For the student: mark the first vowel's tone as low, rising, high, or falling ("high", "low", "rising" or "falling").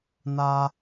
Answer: high